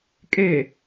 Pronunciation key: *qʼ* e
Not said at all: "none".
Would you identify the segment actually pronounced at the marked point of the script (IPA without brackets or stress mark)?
kʼ